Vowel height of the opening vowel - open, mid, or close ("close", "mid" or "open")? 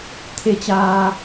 mid